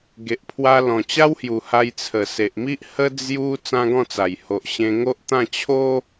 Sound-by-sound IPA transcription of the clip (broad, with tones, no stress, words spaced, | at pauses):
ɡe˨ʔpʰwa˧ lɔ̃˨˩t͡ɕa˦whju˨˩ ha˧jt͡sʰə˨˩se˨ʔmi˦ʔ hə˦ d͡zju˦ t͡sã˦ɡɔ̃˥˧t͡sa˨˩j ho˨ʔɕẽ˧ŋo˦ʔ t̪ã˥˧ t͡ɕʰo˦